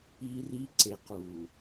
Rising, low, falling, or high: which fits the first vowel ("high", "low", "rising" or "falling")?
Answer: high